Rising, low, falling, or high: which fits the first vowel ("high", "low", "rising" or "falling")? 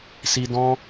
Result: high